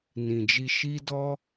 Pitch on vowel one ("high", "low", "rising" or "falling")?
low